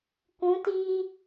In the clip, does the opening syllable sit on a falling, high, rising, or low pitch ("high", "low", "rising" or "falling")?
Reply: rising